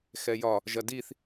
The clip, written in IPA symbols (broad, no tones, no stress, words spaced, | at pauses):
xɛjɒ | ʒɐdiθ